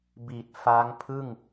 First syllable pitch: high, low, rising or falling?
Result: low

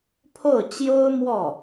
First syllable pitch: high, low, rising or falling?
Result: falling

